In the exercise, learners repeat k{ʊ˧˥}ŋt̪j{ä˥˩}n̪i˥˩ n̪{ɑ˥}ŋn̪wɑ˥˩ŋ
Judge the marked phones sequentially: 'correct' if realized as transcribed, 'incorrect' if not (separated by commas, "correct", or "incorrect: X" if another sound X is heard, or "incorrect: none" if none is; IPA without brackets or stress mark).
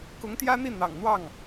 correct, incorrect: ä˥, incorrect: ɑ̰˨˩